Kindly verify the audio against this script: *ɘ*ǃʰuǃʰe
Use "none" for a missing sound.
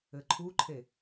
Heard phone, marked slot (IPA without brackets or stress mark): ɘ